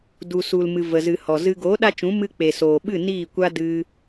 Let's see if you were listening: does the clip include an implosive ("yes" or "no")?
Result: yes